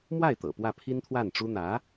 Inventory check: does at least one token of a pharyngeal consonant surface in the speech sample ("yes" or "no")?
no